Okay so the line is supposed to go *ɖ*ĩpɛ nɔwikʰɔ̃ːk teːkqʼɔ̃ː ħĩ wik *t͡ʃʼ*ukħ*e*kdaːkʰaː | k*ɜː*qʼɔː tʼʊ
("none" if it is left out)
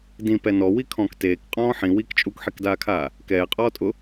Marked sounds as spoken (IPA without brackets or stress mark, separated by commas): d, t͡ʃʼ, i, ɛː